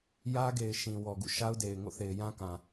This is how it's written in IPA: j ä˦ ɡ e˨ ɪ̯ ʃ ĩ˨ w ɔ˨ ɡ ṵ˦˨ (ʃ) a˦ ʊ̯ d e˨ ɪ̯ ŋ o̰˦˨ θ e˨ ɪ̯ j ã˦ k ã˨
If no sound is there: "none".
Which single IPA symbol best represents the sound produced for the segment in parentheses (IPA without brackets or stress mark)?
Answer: ʃ